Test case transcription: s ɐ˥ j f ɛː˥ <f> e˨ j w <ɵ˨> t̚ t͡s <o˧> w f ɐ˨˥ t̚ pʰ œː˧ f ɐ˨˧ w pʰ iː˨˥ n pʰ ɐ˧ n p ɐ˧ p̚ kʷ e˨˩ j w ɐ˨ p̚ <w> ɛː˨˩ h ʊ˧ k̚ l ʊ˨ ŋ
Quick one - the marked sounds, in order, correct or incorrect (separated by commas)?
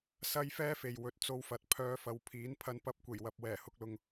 correct, correct, correct, correct